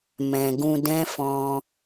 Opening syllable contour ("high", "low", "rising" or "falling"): low